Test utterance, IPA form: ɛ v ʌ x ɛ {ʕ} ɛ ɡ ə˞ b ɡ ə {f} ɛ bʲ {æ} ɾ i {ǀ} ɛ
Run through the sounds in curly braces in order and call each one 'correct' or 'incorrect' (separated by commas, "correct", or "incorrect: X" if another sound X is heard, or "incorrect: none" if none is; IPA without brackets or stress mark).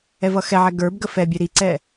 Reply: correct, correct, incorrect: ɛ, correct